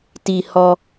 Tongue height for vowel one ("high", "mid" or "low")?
high